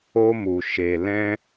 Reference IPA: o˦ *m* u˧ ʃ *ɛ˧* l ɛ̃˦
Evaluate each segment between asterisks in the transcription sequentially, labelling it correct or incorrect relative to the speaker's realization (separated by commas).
correct, incorrect